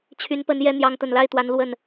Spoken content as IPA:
t͡ɕʰ y˨˦ n p ə˨˦ n j ɛ˨˦ n̪ j ɑ˨˦ ŋ t̪ ə˨˩ n l a˥˨ ɪ̯ t̪ w a˨˦ n l w ə˨˩ n

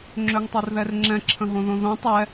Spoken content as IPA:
ŋ͡ǁ ø ŋ tˤ o r ð ɛ r ŋ͡ǁ ɛ̃ ǁʰ ə̃ ɦ õ ð õ ð õ tˤ ɛ

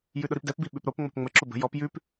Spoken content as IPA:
j ʉ ɗ ʊ ɾ i p d ɛ p b i ɓ ʉ p ɾ o p ŋ͡m ɔ̤ p ŋ͡m ə ǁ ʊ b ə̤ j ɔ p j ʉ p

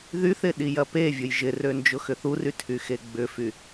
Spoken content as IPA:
ð y θ ɪ ɗ i j ɐ p e vʲ ʊ j ʒ ɪ r ø n d͡ʒ ʊ x ʏ θ u r y tʰ y x e ɡ͡b ʏ f y

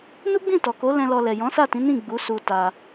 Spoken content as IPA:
n u˦ ɡ͡b ĩ˦˨ t ɔ˨ k o˨˦ l ɛ̃˧ l ɔ˧ l ɛ˨ j ɔ̃˨˦ s a˦˨ t ĩ˨˦ n ĩ˦˨ ɡ͡b u˨˦ s u˧ t a˧

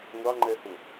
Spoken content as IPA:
ŋʷ ɑ ŋ͡ǃ ɛ h ʊ

